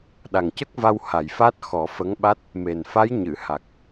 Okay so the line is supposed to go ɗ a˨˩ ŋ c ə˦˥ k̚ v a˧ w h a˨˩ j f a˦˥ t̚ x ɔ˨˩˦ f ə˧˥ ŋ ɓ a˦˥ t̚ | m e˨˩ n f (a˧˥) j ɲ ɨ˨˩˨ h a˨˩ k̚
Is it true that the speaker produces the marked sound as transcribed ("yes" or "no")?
yes